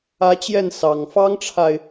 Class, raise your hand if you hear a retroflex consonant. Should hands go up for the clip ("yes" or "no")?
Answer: yes